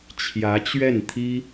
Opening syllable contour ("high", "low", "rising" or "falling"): rising